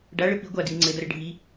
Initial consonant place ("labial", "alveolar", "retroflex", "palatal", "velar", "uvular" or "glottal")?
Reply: retroflex